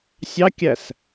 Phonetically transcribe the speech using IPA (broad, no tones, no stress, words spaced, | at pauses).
sʲɑkʲæs